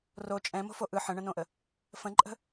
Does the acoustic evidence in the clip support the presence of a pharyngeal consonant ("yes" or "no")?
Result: yes